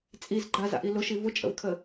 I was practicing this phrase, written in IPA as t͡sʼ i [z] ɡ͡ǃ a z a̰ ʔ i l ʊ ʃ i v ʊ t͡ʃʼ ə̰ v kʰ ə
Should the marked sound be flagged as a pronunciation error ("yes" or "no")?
no